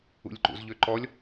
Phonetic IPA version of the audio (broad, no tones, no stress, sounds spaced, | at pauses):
ṵ lʲ ǃ ṵ z ʎ ø ǃ ɔ lʲ